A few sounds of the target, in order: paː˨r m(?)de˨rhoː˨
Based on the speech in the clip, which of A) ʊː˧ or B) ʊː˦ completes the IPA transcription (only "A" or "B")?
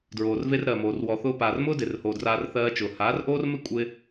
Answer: B